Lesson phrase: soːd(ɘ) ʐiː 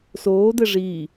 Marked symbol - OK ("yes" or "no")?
yes